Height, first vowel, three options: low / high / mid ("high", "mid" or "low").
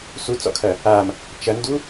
high